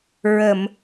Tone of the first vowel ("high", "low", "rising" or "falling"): low